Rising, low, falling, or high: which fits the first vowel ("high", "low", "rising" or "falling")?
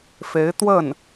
rising